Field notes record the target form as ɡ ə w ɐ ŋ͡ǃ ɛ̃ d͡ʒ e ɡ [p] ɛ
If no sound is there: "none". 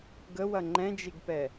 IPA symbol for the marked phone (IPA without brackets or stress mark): p